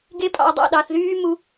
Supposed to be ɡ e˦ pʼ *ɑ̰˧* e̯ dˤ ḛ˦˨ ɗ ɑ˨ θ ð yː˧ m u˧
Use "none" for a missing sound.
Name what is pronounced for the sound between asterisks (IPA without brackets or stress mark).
ɑ̰˧